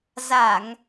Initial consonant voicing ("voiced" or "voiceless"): voiced